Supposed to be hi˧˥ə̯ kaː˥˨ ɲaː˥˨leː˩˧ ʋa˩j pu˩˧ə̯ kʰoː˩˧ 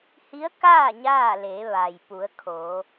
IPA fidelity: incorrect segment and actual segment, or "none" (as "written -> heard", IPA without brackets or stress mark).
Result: none